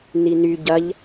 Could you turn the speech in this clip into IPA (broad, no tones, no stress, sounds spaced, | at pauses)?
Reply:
n i n y ɟ ɐ ʎ